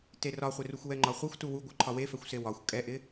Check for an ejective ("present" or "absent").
present